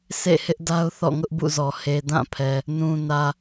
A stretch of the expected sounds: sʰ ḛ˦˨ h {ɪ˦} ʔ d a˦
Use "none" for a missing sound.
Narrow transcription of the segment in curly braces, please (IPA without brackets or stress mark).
ɪ˦